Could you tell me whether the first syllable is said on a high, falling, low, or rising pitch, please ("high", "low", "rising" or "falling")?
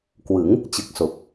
rising